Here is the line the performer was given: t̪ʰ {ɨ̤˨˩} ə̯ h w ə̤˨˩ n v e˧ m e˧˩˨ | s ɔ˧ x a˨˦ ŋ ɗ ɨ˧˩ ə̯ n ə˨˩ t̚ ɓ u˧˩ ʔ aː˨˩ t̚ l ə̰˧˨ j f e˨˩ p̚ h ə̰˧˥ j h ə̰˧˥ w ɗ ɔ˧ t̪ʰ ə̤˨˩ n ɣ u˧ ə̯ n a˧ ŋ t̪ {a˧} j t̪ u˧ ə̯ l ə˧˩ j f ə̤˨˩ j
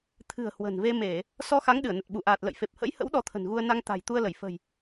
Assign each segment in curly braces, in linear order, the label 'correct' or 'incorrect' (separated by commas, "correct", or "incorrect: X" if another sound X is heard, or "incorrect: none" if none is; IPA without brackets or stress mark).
correct, incorrect: a̤˨˩